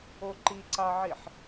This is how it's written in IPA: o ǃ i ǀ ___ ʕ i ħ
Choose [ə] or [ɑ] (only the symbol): ɑ